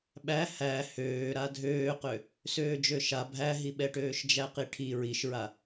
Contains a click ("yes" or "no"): no